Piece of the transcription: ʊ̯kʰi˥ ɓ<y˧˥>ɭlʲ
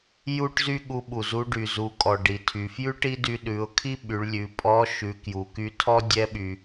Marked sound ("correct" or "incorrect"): incorrect